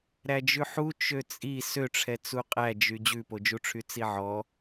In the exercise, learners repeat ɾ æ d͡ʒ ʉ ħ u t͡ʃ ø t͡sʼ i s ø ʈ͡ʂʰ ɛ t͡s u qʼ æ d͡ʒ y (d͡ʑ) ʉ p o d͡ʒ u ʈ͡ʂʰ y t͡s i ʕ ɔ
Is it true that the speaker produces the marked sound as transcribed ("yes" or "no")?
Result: yes